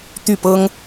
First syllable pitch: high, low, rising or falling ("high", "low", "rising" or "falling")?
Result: falling